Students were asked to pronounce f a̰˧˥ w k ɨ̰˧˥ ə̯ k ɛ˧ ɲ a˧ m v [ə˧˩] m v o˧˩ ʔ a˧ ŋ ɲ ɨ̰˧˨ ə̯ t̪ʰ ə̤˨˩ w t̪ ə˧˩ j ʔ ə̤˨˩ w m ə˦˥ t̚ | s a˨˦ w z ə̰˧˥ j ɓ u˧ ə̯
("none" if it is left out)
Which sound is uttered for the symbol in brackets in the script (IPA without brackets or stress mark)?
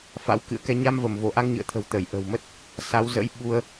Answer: ə˧˩